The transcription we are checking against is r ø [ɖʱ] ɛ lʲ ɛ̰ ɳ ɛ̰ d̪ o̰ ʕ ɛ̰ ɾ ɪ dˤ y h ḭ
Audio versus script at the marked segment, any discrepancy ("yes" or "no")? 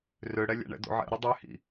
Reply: yes